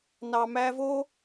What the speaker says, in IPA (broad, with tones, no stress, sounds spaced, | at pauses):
n ɑ˨ m æ˧ v o˦